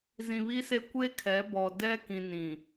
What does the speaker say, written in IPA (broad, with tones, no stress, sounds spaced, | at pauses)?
z ĩ˨ β i˦ s e˦ kʷ e˦ kʰ ɛ˨˦ b ɔ˨ d ɛ˦ k ĩ˨ n ĩ˨